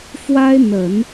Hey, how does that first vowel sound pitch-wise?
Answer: high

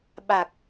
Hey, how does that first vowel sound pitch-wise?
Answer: low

